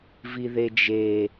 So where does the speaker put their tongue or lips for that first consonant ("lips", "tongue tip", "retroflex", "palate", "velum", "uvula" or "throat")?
lips